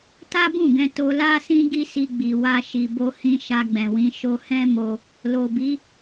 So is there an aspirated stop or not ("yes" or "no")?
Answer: no